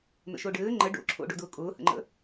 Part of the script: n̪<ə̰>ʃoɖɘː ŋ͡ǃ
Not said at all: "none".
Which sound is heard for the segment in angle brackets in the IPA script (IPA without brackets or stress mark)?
ə̰